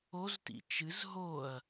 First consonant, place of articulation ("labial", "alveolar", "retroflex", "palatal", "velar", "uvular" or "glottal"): alveolar